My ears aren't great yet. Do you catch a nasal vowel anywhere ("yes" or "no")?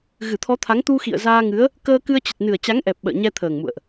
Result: no